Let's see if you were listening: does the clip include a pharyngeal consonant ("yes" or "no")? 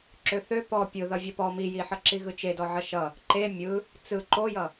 yes